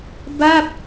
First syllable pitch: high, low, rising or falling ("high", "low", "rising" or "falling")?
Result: falling